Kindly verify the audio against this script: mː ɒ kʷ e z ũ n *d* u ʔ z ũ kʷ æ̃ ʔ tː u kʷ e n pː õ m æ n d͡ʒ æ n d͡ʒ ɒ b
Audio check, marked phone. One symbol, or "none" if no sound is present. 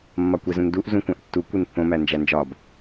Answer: d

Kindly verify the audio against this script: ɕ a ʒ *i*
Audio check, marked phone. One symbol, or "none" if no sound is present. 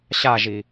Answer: i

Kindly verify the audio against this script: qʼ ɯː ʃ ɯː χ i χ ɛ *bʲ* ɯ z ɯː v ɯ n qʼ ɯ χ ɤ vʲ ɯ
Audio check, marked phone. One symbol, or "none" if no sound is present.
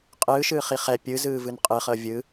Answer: pʲ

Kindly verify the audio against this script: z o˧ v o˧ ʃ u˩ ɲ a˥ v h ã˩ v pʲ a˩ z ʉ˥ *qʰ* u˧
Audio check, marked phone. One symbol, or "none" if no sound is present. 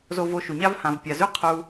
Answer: qʰ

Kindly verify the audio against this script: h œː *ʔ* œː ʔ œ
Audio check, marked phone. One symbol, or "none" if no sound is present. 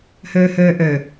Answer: h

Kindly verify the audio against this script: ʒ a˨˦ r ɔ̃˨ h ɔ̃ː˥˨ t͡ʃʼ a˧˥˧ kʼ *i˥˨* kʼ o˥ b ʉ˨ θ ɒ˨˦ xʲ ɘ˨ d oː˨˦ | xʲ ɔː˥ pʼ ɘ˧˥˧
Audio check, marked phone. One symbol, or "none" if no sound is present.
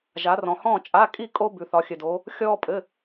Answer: i˥˨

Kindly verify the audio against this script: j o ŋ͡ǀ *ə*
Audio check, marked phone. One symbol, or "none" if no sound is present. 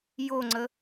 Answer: ə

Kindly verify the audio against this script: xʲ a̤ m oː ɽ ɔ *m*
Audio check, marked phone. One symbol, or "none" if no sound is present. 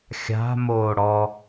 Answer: none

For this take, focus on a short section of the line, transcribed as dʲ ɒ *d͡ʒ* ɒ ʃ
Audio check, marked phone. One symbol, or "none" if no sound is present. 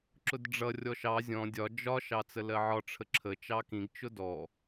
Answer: d͡ʒ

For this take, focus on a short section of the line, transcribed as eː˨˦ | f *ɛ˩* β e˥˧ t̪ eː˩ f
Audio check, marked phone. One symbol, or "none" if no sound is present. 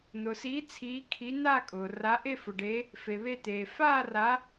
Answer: e˩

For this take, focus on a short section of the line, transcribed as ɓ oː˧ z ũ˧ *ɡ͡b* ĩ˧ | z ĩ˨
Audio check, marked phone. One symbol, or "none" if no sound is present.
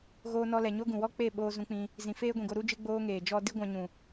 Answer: k͡p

